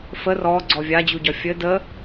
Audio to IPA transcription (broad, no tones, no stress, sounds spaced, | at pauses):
f ə r ɔ ɡ͡ǀ ɔ vʲ a d͡ʑ u ɟ ɒ fʲ ɘ d ə